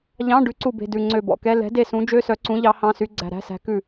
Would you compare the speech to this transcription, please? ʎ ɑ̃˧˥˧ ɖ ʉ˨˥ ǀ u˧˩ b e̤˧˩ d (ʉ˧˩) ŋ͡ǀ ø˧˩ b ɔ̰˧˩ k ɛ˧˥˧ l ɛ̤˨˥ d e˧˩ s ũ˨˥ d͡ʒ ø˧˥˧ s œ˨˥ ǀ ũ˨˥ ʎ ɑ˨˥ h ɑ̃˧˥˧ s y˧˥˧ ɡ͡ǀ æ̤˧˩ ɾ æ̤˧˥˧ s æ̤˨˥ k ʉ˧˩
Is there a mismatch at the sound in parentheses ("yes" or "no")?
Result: no